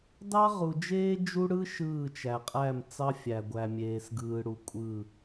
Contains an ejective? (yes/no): yes